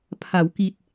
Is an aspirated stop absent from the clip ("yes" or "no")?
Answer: no